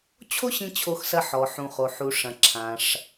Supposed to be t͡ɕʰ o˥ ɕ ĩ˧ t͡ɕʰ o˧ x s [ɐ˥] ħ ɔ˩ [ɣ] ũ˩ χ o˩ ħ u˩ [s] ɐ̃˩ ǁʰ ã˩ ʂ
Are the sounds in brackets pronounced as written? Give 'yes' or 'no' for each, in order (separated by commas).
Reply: no, no, no